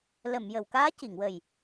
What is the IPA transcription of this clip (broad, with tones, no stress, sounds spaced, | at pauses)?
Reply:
l ə˨˩˨ m j ə˨˩˨ w k aː˧˥ c i˨˩˨ ŋ w ə˨˩ j